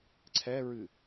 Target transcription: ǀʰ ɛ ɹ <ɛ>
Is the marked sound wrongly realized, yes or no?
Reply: yes